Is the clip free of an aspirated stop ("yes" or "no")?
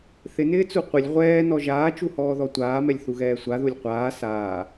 yes